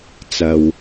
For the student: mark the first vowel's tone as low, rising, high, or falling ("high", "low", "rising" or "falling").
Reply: low